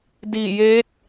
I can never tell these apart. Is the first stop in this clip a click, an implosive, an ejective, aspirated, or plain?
plain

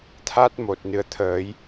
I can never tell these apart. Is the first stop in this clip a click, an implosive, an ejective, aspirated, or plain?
aspirated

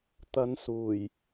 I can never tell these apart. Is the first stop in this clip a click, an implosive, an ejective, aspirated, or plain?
plain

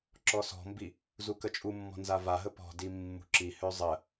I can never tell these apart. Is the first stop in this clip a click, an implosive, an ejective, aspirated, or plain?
click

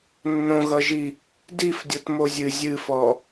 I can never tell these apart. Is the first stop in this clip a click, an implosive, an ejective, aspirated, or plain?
plain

